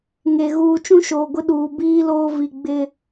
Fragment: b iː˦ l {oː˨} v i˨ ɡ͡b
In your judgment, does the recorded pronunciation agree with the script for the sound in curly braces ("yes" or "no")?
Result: no